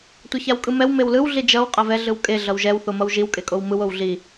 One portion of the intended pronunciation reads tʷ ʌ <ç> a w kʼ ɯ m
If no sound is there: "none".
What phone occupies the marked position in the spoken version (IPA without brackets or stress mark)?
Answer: ç